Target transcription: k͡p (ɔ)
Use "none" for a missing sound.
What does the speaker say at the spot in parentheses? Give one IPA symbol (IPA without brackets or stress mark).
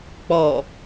ɔ